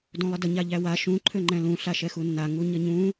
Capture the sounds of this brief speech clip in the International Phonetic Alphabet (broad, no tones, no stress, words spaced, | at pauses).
dũlˠədə ɲaʎæwa ʃũ ǃʰøŋ͡ǃɛ̃lũ ɬaʃɛxunːa ŋuɲəɲũ